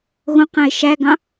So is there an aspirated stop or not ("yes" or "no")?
no